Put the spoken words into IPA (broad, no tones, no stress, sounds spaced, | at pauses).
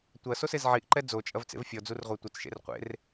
tʷ ɐ s o s e z ʕ i ʔ ǃ ɛ d͡z o t͡ʃʼ ɐ v t͡s ḛ v fʲ ɔ d͡z u r ʁʷ ɛ tʷ ɘ t͡s ʃ ḛ r qʷ ḛ r